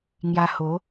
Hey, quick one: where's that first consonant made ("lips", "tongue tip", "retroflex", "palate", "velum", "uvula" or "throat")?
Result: velum